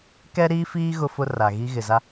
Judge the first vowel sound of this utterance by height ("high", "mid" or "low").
mid